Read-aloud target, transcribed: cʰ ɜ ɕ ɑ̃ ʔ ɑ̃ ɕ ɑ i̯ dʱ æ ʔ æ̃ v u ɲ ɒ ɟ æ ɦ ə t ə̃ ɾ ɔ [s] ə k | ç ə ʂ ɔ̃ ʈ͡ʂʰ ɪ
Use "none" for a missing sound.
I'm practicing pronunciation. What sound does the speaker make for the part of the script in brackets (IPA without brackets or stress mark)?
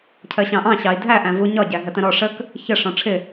ʂ